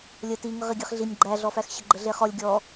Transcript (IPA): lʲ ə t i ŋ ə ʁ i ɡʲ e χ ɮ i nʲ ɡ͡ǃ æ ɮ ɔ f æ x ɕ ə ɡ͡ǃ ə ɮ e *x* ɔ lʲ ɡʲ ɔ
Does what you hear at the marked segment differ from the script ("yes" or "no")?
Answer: yes